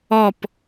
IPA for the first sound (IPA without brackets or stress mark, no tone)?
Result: ɔ